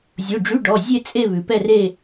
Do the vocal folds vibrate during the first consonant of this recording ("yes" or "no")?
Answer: yes